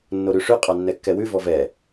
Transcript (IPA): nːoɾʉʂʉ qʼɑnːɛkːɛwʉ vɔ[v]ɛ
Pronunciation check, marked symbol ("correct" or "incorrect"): correct